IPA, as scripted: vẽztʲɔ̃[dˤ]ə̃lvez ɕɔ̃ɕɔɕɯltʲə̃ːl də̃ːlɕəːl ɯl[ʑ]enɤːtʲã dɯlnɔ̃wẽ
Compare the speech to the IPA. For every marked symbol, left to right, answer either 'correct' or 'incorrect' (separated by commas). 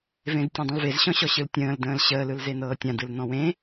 correct, incorrect